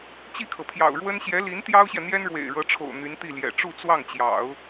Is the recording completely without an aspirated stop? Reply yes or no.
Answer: no